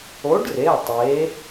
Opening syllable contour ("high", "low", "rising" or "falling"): rising